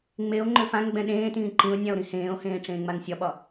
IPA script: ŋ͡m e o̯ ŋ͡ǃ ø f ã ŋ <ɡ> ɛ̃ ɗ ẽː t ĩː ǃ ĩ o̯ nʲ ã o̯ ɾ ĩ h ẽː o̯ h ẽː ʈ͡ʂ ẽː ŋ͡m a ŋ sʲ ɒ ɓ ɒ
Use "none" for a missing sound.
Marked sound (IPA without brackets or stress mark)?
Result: ɡ͡b